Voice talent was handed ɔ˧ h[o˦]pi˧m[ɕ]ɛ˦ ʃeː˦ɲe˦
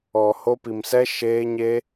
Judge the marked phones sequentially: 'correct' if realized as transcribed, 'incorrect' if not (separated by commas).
correct, incorrect